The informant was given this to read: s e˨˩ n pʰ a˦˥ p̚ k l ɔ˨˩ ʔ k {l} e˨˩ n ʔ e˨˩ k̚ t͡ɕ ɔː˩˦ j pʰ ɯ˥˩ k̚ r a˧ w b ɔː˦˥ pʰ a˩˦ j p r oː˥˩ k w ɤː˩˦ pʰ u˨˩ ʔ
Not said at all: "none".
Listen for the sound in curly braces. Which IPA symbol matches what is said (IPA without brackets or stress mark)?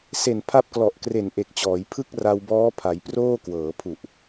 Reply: r